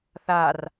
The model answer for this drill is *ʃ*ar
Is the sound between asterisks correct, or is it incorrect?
incorrect: θ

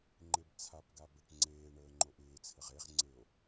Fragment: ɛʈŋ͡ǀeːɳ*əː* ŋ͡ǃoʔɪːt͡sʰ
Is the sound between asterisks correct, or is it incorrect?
correct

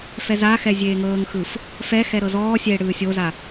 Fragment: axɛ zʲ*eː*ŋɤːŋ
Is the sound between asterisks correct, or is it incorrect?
correct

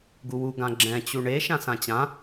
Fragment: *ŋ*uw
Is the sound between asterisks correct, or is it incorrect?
incorrect: ɡ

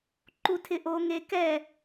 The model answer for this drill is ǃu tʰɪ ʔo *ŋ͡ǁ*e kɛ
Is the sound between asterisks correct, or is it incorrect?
incorrect: ŋ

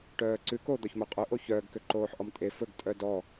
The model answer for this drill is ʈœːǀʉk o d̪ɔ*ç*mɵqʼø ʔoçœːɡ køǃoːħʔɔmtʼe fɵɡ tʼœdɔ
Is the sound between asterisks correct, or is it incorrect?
correct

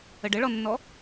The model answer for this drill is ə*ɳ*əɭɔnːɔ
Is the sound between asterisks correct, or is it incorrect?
incorrect: ɖ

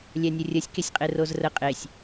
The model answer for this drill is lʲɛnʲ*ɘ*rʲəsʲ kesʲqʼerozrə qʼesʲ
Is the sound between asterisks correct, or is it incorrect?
correct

